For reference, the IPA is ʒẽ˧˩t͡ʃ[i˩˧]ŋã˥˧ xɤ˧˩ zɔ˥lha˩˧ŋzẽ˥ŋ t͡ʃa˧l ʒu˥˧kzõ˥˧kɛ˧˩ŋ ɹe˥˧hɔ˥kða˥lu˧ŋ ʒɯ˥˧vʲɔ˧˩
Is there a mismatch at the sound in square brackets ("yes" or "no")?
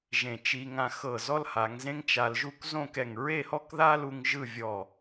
yes